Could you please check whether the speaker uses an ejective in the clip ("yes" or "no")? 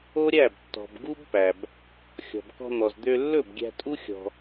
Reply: yes